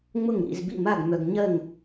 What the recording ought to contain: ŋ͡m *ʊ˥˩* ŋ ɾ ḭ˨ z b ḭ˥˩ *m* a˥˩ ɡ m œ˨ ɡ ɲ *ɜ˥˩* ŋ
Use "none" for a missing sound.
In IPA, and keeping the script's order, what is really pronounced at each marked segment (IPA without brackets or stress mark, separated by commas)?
ʊ˥˩, m, ɜ˥˩